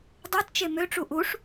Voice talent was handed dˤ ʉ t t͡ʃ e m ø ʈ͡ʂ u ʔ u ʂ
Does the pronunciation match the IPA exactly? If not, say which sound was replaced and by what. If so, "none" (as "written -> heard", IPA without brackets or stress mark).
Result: ʉ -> u